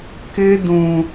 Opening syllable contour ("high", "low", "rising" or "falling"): high